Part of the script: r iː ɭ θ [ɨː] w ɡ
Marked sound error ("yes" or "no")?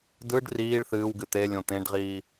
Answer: no